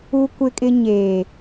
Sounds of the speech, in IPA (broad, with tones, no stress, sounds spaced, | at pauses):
u˦ kʷ ɪ˦ kʼ ɪ˦ ɲ eː˨